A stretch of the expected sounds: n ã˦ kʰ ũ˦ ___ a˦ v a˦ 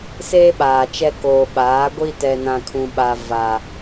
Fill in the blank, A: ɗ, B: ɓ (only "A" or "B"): B